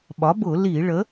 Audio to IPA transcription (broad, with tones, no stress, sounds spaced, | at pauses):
ɓ ɒ˩˥ b ʊ˧˩˧ l i˧˩˧ ɭ ə˩˥